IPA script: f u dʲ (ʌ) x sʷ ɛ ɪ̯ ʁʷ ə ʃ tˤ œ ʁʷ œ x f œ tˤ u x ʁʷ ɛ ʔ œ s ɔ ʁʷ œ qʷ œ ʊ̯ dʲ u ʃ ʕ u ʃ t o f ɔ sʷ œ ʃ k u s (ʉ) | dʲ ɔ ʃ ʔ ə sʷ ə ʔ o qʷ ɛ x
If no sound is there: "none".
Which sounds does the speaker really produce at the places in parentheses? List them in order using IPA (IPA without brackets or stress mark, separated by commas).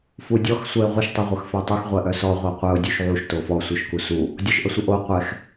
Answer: ɔ, u